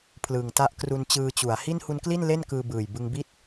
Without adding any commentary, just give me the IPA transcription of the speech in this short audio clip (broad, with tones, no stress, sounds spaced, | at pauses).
pʰ l ɯ˨˩ ŋ t a˦˥ ʔ k r u˧ n t͡ɕ ɯː˧ t͡ɕ u˩˦ a̯ h i˥˩ n h u˦˥ n k l i˥˩ n l e˥˩ n k ɯː˧ b ɯː˨˩ j b ɯ˧ ŋ b i˥˩ t̚